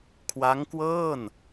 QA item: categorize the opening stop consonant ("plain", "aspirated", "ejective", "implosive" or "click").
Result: aspirated